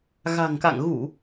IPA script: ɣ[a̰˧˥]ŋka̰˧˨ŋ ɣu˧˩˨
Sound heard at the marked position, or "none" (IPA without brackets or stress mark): a̤˨˩